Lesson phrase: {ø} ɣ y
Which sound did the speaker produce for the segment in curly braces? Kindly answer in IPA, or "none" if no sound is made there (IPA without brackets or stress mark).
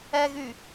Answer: ɛ